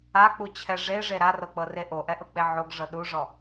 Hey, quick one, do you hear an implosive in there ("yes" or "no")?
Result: yes